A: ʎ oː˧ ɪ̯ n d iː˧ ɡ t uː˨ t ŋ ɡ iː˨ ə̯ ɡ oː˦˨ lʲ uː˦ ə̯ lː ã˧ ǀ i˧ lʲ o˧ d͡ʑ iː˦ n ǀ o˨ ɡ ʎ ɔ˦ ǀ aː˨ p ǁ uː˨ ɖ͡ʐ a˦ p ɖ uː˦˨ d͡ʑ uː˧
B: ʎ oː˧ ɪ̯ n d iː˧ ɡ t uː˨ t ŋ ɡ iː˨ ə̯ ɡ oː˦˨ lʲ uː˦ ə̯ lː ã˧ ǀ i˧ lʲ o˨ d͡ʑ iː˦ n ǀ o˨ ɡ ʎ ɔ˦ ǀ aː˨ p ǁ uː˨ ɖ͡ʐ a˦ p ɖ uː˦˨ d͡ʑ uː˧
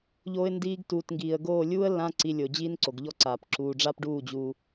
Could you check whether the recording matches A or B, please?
B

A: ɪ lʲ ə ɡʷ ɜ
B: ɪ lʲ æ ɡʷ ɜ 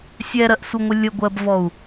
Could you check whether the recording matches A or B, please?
A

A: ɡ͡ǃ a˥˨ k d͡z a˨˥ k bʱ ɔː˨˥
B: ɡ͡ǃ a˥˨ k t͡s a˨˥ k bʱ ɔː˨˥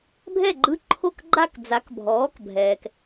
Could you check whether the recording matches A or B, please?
A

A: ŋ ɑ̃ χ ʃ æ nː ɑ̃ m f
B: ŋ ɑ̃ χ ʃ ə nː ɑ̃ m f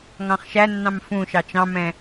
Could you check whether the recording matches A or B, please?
A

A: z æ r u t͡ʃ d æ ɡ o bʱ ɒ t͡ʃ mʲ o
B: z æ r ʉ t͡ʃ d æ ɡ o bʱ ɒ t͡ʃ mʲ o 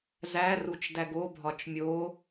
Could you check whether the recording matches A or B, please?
A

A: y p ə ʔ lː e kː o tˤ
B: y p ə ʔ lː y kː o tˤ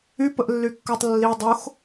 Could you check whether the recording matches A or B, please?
B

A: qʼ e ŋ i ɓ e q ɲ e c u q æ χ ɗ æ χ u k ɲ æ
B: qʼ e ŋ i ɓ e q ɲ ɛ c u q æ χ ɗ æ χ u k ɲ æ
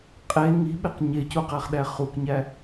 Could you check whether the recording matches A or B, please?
A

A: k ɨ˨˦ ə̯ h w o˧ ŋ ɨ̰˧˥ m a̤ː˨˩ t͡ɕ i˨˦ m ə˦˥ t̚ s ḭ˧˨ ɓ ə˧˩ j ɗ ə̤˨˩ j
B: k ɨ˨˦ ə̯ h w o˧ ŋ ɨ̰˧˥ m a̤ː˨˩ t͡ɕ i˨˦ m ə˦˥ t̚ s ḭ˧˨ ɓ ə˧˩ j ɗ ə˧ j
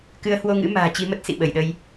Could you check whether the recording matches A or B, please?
B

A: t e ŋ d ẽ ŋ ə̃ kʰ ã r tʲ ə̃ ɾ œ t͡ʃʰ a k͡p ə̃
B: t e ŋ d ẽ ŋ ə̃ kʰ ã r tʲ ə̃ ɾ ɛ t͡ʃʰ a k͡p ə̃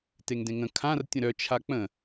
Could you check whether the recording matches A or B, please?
A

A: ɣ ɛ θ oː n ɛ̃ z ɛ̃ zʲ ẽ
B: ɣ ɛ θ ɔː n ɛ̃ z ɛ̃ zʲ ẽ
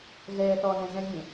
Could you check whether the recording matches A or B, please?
B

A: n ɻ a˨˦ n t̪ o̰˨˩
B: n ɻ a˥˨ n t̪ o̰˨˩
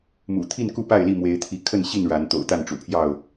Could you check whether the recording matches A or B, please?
A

